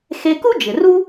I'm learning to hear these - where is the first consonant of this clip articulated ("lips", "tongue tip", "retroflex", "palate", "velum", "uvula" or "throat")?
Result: velum